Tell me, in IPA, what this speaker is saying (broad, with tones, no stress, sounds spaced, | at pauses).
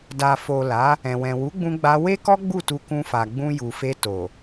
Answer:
d a˨ f o˨ l a˨˦ | ɛ̃˨ w ɛ̃˨ w u˨˦ ɡ͡b ũ˧ ɡ͡b a˧ w e˦ k ɔ˦ ɡ͡b u˦˨ t u˧ k ũ˧ f a˨ ɡ͡b ũ˧ j u˨ f e˧ t o˨